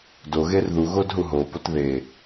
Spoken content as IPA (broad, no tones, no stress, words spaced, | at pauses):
doɣer ðuɣod ɦuɦopot ðe